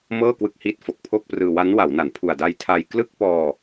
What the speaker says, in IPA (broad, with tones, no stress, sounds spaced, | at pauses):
m ɤː˥˩ k w ɯ˦˥ k̚ h i˦˥ t̚ f o˨˩ k̚ pʰ o˥˩ k̚ p r ɯː˧ w a˦˥ n w a˩˦ w n a˩˦ n pʰ u˨˩ a̯ d a˧ j tʰ a˧ j k l ɯ˥˩ k̚ p ɔː˧